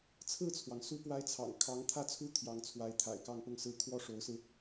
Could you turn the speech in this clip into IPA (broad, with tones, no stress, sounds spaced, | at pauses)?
t͡sʰ ɹ̩˥˩ t͡sʰ w ɑ˩ ŋ s u˥ p w a˥ ɪ̯ t͡sʰ ɑ̰˨˩ ŋ kʰ ɑ˧˥ ŋ t̪ʰ ä˥˩ t͡sʰ u˥ t̪ʰ j ɑ˧˥ ŋ t͡sʰ w a˧˥ ɪ̯ t̪ʰ a̰˨˩ ɪ̯ k ɑ˥˧ ŋ p ʊ˥˧ ŋ s ɹ̩˥˩ kʰ w ɔ˥ ʂ o˧˥ ʊ̯ s ɹ̩˧